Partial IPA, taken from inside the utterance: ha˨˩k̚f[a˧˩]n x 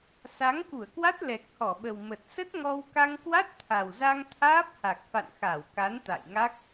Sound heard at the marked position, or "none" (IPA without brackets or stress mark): a̰˧˨